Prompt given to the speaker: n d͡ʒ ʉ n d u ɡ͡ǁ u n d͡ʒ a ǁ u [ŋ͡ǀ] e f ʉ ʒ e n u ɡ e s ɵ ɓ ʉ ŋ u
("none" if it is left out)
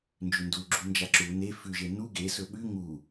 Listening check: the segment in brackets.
n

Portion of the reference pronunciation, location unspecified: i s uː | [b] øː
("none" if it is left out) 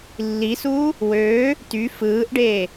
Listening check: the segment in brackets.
w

